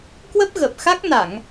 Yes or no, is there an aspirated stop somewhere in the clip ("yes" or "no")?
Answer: no